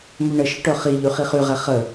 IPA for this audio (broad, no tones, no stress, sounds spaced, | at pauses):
m ʉ ɳ ə ʃ ə ʈ œ χ i ʎ y χ i χ y ʁ ɛ χ ə